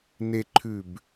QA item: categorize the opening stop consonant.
click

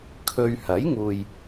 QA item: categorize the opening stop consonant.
aspirated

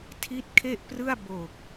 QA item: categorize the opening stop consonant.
aspirated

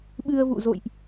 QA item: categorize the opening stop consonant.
implosive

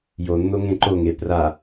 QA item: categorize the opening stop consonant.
click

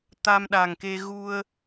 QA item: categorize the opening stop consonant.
plain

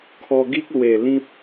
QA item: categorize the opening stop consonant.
aspirated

